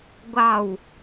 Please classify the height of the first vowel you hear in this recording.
low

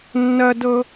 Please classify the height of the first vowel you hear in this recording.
low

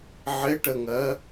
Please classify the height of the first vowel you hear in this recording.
high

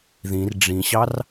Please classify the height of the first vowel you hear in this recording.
high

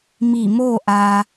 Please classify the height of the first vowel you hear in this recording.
high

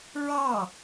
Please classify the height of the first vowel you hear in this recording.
low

